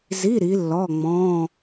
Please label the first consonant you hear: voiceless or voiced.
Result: voiced